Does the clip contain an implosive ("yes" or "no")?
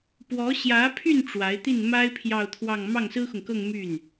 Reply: no